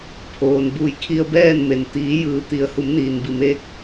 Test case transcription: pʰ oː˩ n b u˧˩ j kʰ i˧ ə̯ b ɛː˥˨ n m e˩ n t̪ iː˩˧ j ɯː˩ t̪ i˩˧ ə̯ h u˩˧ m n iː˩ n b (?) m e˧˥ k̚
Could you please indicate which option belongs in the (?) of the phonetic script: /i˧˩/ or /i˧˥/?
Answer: i˧˩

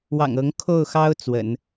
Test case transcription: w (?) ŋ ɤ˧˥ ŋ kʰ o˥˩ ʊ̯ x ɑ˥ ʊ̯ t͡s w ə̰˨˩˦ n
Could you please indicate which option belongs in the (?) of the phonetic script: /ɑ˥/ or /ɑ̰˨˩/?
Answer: ɑ̰˨˩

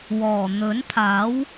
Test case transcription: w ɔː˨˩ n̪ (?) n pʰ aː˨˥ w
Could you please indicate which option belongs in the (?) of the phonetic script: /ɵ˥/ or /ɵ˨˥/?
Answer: ɵ˨˥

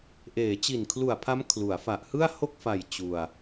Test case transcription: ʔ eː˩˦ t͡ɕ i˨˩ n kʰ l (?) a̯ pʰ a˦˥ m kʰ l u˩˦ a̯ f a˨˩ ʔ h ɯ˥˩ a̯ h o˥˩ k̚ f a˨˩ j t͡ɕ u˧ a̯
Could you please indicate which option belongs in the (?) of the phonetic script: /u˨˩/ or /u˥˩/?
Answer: u˨˩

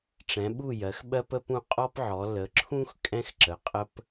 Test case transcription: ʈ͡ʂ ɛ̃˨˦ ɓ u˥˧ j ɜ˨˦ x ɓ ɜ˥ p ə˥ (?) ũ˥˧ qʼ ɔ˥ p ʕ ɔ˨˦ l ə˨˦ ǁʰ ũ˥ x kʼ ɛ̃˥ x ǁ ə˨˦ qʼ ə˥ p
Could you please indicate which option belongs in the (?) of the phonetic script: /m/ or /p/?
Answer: p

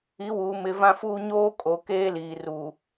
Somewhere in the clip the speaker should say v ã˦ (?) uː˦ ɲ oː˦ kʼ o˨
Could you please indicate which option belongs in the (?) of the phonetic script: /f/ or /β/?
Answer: f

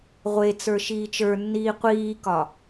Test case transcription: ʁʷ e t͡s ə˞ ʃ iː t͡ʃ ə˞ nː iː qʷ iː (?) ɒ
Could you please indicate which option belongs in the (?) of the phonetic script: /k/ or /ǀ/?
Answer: k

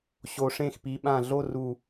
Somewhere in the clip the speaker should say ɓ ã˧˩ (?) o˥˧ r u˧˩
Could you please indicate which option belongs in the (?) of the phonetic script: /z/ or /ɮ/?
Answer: ɮ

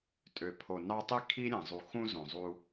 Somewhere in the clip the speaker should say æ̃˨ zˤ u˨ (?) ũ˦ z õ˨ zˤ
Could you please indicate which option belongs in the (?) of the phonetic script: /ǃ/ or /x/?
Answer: x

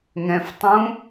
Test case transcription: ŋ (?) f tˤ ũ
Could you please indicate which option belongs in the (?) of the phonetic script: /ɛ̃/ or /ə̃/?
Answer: ɛ̃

